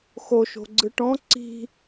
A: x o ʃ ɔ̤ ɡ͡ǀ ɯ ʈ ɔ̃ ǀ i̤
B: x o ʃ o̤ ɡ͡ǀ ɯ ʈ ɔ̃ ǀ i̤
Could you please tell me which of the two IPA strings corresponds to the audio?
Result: B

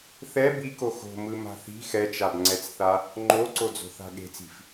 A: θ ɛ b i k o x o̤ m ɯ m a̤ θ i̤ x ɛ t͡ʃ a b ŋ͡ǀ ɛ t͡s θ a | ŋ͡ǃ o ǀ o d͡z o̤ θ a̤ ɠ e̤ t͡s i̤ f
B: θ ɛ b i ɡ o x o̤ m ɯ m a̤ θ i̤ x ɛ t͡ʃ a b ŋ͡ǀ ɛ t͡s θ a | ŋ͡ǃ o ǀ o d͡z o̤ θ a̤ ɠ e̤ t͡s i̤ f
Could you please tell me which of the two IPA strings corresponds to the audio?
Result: A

